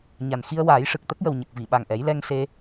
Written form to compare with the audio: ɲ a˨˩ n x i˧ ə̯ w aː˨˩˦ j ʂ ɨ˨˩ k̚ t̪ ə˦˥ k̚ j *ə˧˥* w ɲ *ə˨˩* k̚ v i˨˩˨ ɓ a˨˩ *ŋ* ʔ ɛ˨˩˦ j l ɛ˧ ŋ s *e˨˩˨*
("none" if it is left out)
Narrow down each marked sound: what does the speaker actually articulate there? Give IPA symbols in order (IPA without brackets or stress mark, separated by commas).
ə˨˩, ə˨˩, ŋ, e˧